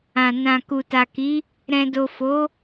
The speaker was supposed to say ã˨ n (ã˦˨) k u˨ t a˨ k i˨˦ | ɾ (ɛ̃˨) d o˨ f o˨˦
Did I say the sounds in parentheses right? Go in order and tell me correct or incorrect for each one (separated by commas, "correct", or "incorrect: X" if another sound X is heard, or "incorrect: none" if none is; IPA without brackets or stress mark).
incorrect: ã˨, correct